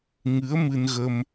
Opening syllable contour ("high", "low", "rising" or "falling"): rising